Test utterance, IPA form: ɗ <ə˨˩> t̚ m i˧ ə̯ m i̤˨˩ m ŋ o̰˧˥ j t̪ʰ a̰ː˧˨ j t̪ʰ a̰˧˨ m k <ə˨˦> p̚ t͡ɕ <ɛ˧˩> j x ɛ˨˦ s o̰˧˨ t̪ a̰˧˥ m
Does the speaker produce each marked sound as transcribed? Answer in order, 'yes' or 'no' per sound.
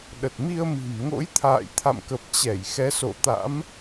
yes, no, yes

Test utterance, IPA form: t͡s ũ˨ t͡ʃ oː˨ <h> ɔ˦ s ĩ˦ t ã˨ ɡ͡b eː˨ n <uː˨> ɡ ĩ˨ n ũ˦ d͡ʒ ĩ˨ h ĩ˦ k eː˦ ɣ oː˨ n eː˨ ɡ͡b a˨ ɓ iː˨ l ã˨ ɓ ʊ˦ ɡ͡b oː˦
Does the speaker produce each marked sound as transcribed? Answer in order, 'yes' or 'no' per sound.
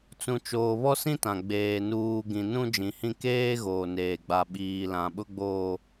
no, yes

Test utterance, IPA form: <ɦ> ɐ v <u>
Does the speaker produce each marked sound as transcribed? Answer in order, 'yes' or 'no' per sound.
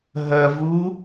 yes, yes

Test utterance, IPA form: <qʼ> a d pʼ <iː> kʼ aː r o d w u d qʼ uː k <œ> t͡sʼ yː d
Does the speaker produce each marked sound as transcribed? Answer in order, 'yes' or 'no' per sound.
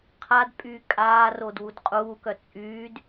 no, no, yes

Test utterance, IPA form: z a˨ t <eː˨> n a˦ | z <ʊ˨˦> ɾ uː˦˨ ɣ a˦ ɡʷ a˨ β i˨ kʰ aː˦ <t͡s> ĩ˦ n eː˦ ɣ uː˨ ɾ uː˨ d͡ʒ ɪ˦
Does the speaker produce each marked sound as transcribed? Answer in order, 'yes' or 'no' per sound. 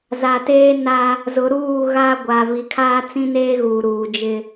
no, yes, yes

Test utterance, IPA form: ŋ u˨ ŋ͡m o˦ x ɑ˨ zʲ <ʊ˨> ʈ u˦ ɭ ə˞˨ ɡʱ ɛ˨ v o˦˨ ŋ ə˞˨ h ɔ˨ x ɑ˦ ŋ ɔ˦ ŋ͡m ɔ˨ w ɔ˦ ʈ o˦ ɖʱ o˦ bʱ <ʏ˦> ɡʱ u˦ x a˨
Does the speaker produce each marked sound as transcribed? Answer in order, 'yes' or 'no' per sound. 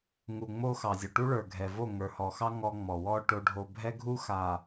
yes, no

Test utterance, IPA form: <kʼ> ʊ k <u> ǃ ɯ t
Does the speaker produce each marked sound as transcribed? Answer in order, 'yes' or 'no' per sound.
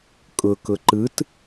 yes, no

